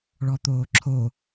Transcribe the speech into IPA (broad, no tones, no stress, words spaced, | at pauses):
ɭɔt̪oːǁʰo